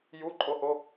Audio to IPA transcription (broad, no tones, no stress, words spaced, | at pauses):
juǃʼoho